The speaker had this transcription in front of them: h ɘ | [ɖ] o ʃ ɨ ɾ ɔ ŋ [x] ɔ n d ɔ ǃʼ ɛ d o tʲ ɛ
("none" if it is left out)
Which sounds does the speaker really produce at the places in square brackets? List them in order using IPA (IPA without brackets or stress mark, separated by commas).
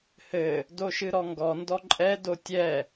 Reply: d, ɡ